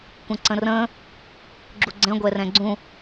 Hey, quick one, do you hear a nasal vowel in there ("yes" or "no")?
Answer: yes